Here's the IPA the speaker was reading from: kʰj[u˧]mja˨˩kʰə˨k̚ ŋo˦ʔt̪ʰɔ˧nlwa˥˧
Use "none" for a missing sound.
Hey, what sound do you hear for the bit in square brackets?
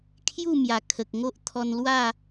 u˥˧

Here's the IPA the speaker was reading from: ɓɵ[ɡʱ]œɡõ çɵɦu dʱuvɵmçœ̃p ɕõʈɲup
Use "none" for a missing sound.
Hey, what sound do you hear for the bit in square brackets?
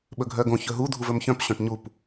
ɡʱ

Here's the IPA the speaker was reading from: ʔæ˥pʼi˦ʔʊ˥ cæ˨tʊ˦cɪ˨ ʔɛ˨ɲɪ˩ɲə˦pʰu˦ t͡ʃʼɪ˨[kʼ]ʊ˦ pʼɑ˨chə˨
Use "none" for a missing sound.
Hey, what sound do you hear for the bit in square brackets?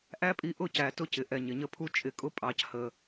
kʼ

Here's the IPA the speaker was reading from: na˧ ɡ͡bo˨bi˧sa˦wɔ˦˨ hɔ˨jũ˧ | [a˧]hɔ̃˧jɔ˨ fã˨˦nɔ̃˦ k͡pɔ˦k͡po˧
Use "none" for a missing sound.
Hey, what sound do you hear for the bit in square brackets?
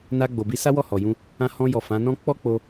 ã˧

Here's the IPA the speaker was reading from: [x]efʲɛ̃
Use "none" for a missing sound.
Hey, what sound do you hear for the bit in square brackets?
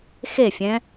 x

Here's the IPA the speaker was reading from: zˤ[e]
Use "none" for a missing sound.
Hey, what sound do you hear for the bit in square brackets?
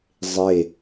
e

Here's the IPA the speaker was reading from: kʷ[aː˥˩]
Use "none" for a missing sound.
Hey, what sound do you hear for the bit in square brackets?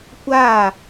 aː˥˩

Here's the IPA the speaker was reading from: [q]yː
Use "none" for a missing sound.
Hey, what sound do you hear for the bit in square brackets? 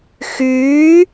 x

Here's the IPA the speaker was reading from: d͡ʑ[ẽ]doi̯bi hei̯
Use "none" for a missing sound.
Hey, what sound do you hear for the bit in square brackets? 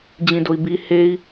ĩ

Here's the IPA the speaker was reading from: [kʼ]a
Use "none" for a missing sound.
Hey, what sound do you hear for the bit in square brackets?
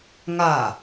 ŋ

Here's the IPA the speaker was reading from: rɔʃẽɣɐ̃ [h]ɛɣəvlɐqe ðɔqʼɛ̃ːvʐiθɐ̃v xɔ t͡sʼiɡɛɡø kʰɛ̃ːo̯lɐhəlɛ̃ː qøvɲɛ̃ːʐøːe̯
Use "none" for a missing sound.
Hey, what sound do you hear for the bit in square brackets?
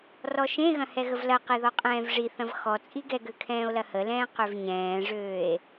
h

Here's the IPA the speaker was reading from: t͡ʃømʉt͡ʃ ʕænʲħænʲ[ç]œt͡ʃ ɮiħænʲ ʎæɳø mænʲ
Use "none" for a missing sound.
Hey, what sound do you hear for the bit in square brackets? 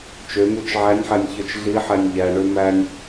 ç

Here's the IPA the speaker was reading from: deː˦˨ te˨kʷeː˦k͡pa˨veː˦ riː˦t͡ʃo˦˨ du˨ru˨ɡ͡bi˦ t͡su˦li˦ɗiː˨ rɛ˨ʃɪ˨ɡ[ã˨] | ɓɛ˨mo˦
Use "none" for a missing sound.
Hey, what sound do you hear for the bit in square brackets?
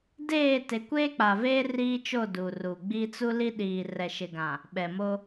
ã˨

